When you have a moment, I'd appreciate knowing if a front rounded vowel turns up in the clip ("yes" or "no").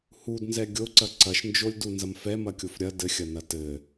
no